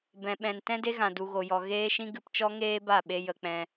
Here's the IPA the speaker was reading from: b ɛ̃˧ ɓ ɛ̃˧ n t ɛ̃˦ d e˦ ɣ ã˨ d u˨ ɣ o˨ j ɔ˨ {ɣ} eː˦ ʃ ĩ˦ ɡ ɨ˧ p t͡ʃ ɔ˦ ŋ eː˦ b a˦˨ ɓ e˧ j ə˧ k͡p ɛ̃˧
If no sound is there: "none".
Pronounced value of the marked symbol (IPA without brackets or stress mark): ɣ